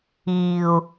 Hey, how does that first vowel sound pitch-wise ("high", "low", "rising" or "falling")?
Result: low